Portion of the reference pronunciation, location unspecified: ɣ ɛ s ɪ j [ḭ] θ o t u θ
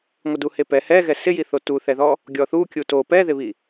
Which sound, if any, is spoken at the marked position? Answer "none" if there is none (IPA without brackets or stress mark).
i